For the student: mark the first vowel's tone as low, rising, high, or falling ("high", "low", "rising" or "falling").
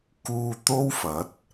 low